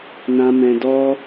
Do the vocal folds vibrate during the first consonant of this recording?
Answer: yes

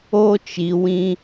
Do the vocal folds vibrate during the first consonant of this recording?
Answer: no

